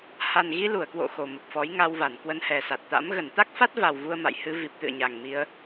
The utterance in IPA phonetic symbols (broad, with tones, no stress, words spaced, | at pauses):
ha˨˩nɣi˧lu˧˩ə̯ kwo̰˧˨ xo˨˩mə˨˩p̚fɔ˨˦j ŋa˧wva˧˩nkwə˧n hɛ˨˩sa˨˩t̚t̪a̰˧˥m ɣə˧˩nt̪a˦˥k̚fa˦˥t̚ va˨˩w vu˧ə̯ma̰˧˨jhɨ˧ vi˨˩p̚t̪ɨ̰˧˨ə̯ ɲa˨˩ŋmi˧ə̯